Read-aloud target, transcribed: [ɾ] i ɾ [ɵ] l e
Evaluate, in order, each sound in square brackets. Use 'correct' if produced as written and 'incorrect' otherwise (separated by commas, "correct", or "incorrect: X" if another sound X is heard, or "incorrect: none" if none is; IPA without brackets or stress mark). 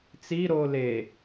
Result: incorrect: t͡s, incorrect: o